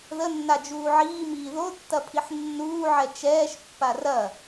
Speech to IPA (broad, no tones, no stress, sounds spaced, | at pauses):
ð ə nː a d͡ʒ uː ʕ iː m iː ð o tː ɐ pʰ i ħ nː uː ʕ ɛ t͡ʃ ɛː ʃ pː a r ɐ